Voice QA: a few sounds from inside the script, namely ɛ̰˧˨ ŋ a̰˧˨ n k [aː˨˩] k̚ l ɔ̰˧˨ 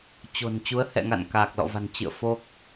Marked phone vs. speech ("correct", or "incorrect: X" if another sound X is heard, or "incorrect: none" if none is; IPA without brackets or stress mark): correct